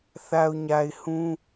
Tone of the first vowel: low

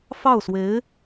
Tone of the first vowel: falling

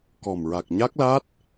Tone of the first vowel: low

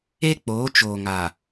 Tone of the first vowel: high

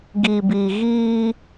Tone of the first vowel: low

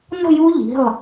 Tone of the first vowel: falling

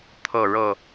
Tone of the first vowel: falling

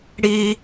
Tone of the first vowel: high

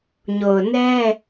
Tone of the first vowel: low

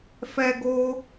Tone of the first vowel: high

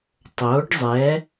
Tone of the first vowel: rising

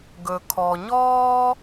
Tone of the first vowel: low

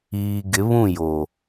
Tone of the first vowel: low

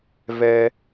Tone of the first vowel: high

